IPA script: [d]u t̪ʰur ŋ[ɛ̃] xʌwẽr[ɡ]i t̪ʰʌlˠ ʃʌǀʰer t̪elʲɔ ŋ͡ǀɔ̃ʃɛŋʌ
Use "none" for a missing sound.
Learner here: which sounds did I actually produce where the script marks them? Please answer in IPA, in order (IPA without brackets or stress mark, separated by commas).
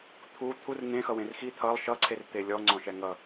t̪ʰ, ẽ, x